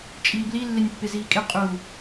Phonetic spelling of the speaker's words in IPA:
t͡ʃʼ iː b l i lː ɪ nʲ pː ɪ z iː kʼ ɪ qʼ u

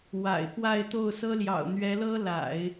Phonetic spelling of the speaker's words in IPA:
w a̰˨˩ ɪ̯ p w a˥˧ ɪ̯ t̪ o˥˩ ʊ̯ s ɤ˥ l j ɑ̰˨˩ ʊ̯ n̪ ɥ ɛ˧˥ l ɤ˥ l a̰˨˩˦ ɪ̯

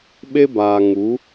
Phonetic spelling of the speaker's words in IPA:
ɓ e˦ b aː˨ ŋ u˨˦

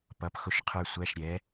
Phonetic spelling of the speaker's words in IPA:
p ʌ˧˥˧ p x ʊ˥˧ ʃ qʰ ə˞˥˧ sʷ æ˧˥˧ ʃ ɾʲ ɛ˨˥

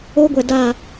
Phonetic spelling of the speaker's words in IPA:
oː˦ ɡʷ ɛ˨ d aː˦˨

